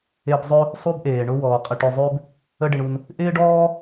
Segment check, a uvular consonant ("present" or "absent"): present